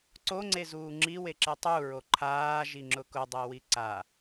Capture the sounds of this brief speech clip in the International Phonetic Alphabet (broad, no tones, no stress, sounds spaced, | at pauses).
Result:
ǀ o ŋ͡ǀ e z uː ŋ͡ǁ i w e ǁ e tˤ u ɹ o ǃʰ aː ʒ i ŋ͡ǁ ʊ k ʊ dˤ e w i ǀ a